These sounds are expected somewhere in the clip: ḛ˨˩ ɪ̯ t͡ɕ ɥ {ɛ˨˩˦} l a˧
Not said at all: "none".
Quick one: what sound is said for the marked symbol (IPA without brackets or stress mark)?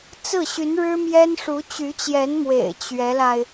ɛ˧˥